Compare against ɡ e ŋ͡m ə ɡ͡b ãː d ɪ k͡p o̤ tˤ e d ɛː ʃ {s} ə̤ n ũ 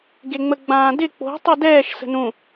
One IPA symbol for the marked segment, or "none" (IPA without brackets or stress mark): s